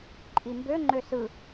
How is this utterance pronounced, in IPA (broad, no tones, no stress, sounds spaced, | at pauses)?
ǃʼ i m b ø ŋ͡ǃ ø s ɯ